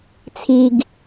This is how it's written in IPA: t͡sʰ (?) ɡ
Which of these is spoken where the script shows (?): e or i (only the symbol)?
i